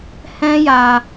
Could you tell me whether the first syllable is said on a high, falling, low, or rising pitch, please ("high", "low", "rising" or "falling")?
high